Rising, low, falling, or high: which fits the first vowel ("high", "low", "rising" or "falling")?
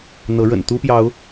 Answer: rising